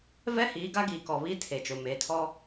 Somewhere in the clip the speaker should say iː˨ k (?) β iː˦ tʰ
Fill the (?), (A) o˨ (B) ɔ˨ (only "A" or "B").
B